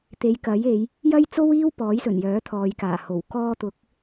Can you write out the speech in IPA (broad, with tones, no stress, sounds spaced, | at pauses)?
t̪ e˨˧ j k ɐ˨˥ j e˨˧ j | j ɐ˥ j t͡s o˥ w iː˥ w p ɔː˨˥ j s ɵ˨˩ n j œː˨˥ t̪ʰ ɔː˨ j k aː˨˩ h o˨˩ w k ɔː˧ t̪ ʊ˨˥ k̚